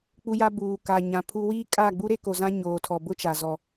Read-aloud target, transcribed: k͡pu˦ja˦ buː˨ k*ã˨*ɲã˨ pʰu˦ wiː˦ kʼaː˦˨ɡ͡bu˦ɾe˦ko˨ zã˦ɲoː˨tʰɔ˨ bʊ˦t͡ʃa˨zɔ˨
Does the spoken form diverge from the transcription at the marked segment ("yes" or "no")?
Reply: yes